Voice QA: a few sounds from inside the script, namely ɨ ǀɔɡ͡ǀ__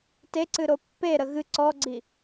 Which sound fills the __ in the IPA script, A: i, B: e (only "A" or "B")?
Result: A